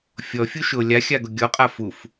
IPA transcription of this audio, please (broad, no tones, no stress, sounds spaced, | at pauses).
fʲ ɔ fʲ u ʃ ʊ lʲ a xʲ a ɡ ʊ ɡʲ ɔ qʼ a f u f